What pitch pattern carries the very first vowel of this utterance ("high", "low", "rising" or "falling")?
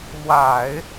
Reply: low